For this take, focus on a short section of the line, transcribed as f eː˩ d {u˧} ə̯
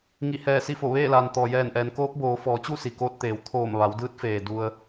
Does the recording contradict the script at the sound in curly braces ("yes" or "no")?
no